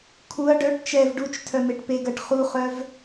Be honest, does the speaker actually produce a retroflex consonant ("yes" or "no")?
yes